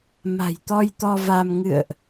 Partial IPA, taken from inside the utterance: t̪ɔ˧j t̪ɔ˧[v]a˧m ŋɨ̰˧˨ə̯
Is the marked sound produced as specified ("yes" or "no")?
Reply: yes